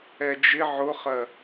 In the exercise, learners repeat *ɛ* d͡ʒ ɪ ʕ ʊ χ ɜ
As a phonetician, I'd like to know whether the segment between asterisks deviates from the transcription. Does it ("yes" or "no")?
no